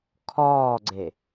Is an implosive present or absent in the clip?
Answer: absent